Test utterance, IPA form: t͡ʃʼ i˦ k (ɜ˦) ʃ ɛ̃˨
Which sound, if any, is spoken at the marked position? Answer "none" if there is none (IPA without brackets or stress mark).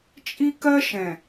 ɜ˦